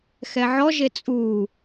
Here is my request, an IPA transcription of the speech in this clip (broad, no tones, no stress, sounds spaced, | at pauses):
x ɛ ʕ ɔ ʒ e t͡sʼ u